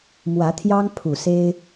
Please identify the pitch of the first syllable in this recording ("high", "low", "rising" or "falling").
rising